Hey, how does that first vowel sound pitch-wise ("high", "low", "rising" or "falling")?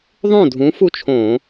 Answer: falling